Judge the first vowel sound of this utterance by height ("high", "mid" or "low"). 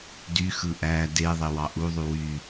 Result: high